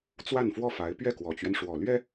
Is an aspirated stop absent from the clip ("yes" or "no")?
yes